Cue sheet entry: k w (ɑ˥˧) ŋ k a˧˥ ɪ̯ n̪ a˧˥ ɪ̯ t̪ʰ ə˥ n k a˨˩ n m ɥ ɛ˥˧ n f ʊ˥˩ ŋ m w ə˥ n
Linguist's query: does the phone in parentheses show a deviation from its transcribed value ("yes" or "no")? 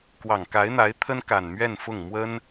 yes